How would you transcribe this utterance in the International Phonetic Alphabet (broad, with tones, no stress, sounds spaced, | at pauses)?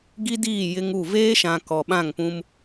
ɡ i˦ d iː˦˨ j ɪ˦ ŋ u˦˨ v eː˦ ʃ ã˨ k ɔ˨ ɓ ã˦˨ ŋ p ũ˦ m